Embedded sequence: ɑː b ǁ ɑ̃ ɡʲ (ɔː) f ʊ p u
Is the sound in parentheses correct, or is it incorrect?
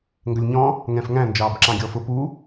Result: correct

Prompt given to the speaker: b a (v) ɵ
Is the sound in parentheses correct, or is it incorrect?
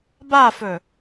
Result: incorrect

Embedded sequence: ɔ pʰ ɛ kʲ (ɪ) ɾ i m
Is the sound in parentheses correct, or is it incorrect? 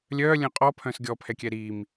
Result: incorrect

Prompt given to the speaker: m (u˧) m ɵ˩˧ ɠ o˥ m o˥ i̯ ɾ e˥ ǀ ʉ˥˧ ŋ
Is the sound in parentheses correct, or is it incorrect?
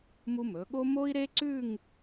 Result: correct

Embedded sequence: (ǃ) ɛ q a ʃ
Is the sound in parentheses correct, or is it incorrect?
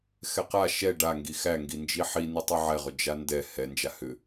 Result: incorrect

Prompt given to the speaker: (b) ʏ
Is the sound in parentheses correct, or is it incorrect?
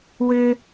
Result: incorrect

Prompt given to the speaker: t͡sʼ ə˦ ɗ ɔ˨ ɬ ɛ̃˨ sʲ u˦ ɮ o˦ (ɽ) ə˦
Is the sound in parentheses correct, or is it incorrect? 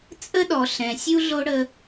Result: correct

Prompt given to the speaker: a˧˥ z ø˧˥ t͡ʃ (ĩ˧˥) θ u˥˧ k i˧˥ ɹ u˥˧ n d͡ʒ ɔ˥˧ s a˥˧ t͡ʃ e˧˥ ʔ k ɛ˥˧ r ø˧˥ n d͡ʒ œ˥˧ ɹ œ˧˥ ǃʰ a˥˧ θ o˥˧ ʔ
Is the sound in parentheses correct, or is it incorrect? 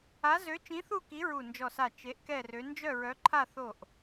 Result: correct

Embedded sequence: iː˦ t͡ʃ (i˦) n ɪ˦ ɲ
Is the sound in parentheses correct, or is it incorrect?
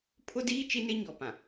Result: correct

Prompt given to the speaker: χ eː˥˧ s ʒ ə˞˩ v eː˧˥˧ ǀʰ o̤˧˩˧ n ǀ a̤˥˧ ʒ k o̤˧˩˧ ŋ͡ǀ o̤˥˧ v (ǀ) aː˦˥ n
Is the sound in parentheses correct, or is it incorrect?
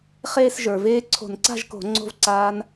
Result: correct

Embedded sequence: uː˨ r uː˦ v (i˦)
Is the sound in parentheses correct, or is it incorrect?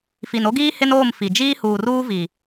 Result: incorrect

